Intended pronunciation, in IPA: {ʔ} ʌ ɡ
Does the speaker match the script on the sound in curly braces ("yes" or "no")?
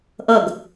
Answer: yes